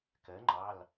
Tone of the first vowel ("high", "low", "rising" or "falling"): rising